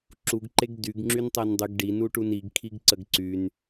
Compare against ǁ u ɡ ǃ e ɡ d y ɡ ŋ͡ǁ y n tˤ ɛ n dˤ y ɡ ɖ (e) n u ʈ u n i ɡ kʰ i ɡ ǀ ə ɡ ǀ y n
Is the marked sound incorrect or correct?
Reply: incorrect